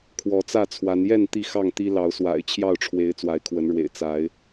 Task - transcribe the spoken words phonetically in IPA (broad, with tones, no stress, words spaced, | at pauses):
kʰwɔ˨˦t͡sä˥˨t͡sʰwa˨˦n jɛ˥˨n t̪i˥˨xɑ˥˨ŋt̪i˦ lɑ˨˦ʊ̯swa̰˨˩ɪ̯ t͡ɕʰjɑ˥˨ʊ̯ʈ͡ʂʰwe˨˦ɪ̯ t͡swa˨˦ɪ̯kʰwə˨˦nɻwḛ˨˩ɪ̯ t͡sa˨˦ɪ̯